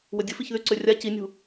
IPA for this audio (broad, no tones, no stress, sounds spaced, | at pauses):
w ə dʲ ə f i ç ð y ǀ ø rʲ a c i nʲ ṳ